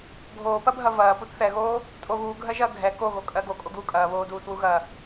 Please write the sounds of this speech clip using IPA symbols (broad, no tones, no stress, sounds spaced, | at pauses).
ɡʱ oː p ɐ bʱ ɐ v ɐː p u t θ ɛ ɣ oː | tʼ o ɣ uː ɡʱ ɜ ʒ ɐː ɡʱ ɛ k o ɣ o kʼ ɜ ɡ o kʼ o ɡ uː kʼ ɐː β oː d uː t w u ɣ ɐ